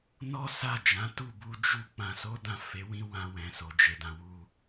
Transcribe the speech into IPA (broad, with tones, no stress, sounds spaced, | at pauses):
n ɔ˦ s a˦˨ d͡ʒ ã˨˦ t u˦˨ b u˧ d͡ʒ u˦ k͡p ã˧ s o˦ d ã˦˨ f e˨˦ w ĩ˦ w ã˧ w ɛ̃˨ s o˨ d͡ʒ e˨ d ã˨ w u˧